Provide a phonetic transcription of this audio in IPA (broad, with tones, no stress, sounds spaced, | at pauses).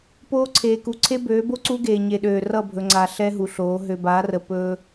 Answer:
p oː˦ ǀʰ eː˨ k u˨ ǀʰ e˦ b øː˨˦ b o˦ ǀ u˦ ɡ eː˨ ɲ e˨ ɗ øː˨ r ʌ˦˨ bʱ ɵ˨ ŋ͡ǀ a˨ ɬ ɛ˦ ɦ u˨ ɬ oː˨˦ ɦ ø˨ b a˨˦ r ə˨ p ɵ˦